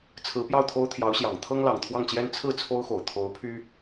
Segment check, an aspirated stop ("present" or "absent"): present